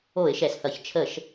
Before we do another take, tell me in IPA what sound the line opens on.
o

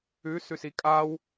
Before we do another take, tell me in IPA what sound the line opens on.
ʉ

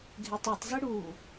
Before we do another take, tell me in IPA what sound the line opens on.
ɡʱ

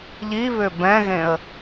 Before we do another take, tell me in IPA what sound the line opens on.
ʎ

